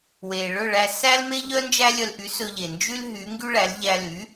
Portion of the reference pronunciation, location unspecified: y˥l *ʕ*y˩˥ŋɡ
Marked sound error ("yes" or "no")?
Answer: yes